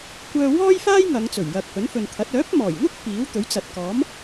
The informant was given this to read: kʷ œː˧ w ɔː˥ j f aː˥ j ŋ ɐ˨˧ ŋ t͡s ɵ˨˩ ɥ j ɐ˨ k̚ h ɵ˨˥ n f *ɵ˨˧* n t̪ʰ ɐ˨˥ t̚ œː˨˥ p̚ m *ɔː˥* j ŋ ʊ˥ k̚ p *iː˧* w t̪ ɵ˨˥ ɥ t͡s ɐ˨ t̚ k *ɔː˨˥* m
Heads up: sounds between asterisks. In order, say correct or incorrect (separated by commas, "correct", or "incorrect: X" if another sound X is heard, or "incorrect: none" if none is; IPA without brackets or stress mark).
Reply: incorrect: ɵ˨, incorrect: ɔː˨˩, incorrect: iː˨˥, correct